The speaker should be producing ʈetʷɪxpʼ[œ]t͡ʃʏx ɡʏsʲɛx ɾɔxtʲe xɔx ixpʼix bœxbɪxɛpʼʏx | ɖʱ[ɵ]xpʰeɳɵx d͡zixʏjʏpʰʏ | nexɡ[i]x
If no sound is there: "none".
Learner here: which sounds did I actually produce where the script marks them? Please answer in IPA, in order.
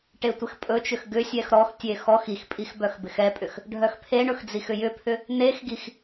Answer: ɵ, œ, i

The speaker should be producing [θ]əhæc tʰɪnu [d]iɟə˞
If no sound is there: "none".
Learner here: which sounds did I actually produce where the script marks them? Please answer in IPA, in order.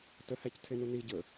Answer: t, n

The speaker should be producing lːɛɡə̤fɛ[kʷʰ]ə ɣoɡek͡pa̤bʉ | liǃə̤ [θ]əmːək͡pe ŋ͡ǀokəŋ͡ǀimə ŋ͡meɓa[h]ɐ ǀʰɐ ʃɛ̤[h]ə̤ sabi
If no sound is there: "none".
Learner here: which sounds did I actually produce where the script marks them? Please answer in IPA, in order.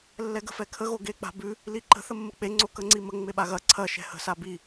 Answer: kʰ, θ, ɣ, h

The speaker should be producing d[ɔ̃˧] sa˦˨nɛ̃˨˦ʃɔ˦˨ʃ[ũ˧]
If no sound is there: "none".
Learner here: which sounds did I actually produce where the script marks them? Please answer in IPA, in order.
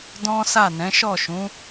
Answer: ɔ̃˦, ũ˨˦

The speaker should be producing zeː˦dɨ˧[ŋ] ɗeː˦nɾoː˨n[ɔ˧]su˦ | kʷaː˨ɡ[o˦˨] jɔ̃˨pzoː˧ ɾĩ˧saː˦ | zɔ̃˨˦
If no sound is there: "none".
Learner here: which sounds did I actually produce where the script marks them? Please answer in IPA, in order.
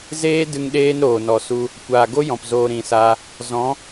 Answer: ŋ, ɔ˧, o˦

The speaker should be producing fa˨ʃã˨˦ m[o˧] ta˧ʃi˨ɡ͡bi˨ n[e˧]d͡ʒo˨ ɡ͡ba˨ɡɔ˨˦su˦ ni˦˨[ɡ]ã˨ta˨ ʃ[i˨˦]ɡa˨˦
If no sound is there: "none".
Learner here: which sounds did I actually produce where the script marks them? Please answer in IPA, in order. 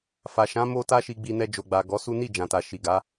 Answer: o˧, ɛ˧, d͡ʒ, i˨

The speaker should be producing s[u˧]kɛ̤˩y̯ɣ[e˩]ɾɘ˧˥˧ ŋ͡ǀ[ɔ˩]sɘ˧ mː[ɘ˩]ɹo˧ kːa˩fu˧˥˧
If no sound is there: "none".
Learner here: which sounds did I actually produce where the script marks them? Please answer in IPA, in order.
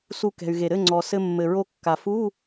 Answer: u˧, e˩, ɔ˩, ɘ˩

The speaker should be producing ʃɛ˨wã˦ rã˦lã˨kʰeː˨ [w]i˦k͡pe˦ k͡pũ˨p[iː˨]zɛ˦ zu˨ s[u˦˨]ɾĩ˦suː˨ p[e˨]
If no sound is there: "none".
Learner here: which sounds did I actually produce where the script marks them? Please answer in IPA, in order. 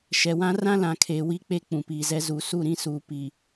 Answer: w, iː˨, u˦˨, i˨

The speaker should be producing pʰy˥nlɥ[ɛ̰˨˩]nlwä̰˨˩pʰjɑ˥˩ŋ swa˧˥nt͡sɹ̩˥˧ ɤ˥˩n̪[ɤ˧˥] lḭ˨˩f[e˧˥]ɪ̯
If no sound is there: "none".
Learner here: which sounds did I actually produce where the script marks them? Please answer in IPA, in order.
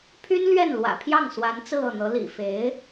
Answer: ɛ˥˩, ɤ˧˥, e˧˥

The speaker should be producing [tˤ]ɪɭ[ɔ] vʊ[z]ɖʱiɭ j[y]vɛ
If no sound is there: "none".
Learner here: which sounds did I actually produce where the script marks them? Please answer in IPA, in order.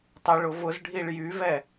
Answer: tˤ, ʊ, z, y

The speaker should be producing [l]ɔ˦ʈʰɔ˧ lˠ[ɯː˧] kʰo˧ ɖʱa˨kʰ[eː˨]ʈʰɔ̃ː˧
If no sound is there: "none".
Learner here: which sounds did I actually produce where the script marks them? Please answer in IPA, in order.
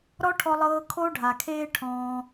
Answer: ɾ, ɤː˧, eː˦

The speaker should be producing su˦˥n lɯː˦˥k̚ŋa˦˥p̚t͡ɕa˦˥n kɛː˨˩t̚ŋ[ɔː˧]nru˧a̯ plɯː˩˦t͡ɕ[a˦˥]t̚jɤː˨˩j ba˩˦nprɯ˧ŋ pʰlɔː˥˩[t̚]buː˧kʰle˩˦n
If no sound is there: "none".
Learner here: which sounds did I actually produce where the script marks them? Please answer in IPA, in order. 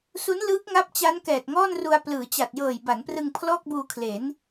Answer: ɔː˥˩, a˨˩, k̚

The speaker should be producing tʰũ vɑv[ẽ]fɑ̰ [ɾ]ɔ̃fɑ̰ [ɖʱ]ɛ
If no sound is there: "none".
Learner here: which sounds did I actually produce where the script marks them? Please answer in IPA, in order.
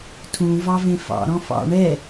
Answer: ẽ, ɾ, ɳ

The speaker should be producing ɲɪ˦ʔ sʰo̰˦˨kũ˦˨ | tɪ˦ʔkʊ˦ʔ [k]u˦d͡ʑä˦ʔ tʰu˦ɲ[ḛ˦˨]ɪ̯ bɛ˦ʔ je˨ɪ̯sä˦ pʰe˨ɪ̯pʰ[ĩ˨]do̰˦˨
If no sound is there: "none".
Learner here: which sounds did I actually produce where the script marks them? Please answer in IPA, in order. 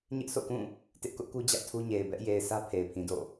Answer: k, e˨, ĩ˨

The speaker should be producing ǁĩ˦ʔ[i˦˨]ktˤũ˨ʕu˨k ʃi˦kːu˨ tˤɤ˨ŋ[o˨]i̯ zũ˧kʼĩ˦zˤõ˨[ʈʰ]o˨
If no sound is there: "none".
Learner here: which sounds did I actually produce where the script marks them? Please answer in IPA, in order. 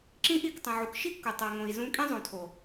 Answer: i˦˨, õ˨, tʰ

